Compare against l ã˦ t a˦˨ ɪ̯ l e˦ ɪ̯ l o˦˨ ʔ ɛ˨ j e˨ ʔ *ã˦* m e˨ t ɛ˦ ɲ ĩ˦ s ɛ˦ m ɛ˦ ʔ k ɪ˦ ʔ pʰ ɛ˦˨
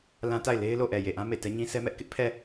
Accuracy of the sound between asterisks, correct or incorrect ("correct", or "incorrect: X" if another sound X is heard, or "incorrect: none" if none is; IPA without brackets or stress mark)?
correct